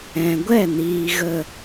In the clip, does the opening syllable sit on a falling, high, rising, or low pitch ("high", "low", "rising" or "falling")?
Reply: low